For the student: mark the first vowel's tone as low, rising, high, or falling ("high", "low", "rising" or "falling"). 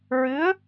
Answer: rising